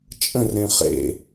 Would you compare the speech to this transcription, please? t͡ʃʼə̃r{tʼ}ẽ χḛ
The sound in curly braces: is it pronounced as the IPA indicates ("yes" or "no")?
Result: no